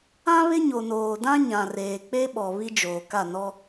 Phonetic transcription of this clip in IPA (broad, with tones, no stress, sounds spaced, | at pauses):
ã˦ β ɪ˦ ɲ o˨ n oː˨ d ã˦ ɲ ã˨ r eː˨ k͡p e˦ ɓ ɔ˨ β i˦ d͡ʒ oː˨ k a˦˨ n ɔ˦